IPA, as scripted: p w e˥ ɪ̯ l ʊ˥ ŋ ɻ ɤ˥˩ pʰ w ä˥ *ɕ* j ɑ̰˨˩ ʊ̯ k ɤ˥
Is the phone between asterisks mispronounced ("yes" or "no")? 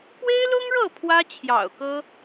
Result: yes